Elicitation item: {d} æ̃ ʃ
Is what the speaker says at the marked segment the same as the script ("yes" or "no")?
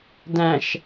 yes